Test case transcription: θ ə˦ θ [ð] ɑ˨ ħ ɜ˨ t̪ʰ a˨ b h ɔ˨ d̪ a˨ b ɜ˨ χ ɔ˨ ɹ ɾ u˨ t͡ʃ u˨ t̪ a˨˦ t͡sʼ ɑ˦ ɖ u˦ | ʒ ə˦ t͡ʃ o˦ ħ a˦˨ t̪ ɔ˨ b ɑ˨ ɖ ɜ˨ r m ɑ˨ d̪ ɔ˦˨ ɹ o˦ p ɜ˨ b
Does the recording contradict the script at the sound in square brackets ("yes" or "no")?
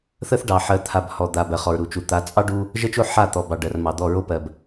yes